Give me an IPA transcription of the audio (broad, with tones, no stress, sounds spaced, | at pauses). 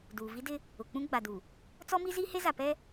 d uː˨ v i˦ d ɪ˦ | ʊ˨ k͡p ũ˦ ɡ͡b a˨ d u˨ | t͡s ɔ˦ m i˦ z i˦ h e˦ z a˨ p ɛ˦